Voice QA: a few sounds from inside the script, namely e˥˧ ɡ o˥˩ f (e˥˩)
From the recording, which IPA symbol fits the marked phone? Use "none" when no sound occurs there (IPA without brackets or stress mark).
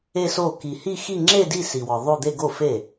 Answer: e˥˩